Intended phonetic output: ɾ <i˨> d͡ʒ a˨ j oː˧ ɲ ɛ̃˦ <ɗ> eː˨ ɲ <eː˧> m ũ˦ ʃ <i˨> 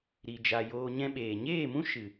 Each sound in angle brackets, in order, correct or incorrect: correct, incorrect, incorrect, incorrect

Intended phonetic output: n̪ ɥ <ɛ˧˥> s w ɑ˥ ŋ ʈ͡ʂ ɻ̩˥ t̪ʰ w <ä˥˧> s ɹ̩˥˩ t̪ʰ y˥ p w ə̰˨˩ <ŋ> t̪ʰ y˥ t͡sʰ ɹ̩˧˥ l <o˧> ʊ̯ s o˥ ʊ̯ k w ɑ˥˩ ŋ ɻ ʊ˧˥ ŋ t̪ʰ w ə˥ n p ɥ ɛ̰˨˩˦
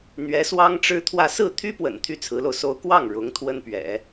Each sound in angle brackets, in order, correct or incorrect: correct, correct, incorrect, correct

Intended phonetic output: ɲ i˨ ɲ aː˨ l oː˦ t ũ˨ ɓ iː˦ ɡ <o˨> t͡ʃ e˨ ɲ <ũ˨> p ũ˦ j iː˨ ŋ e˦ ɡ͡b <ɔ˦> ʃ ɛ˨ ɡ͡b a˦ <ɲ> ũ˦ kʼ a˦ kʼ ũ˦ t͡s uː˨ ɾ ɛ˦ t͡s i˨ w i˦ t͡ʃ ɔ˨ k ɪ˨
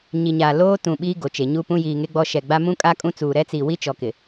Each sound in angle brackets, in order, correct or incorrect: correct, incorrect, correct, incorrect

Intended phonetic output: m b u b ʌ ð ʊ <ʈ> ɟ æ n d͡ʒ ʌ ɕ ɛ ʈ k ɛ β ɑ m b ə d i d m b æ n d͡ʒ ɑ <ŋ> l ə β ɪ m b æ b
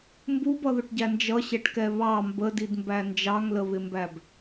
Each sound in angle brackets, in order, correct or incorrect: correct, correct

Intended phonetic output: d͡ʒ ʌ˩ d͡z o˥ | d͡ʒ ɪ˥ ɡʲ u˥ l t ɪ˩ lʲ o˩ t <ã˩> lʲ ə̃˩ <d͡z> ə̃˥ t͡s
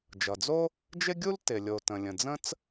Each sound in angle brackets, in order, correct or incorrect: incorrect, correct

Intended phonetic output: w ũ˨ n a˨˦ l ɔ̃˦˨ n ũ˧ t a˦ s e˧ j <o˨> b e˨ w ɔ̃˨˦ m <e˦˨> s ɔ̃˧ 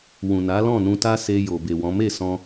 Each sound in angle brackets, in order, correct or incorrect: correct, correct

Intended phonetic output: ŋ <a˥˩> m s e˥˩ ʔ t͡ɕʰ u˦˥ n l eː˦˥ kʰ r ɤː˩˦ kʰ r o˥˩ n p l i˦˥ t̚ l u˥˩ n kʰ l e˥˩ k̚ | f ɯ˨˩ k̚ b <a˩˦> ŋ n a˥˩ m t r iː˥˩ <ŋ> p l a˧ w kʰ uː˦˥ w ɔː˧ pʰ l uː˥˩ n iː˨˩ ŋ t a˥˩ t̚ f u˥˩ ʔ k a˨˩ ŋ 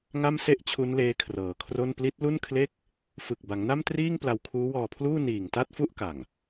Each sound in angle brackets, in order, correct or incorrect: correct, correct, correct

